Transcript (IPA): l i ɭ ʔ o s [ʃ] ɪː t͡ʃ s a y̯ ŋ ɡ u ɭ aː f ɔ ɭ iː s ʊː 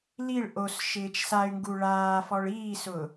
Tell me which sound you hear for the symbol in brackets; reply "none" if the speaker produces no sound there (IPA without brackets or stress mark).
ʃ